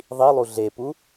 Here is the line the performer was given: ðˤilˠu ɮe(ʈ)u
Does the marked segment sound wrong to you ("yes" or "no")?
yes